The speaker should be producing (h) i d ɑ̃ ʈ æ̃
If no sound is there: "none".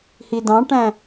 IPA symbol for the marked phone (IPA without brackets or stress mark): h